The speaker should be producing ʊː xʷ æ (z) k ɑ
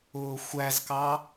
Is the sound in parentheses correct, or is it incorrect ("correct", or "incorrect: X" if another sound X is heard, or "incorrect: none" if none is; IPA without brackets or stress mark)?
correct